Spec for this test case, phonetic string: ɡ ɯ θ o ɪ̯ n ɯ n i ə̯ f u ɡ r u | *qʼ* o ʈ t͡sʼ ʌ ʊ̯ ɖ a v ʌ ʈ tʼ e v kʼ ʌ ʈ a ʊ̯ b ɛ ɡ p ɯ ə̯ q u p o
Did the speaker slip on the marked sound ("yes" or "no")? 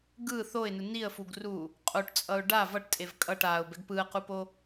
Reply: no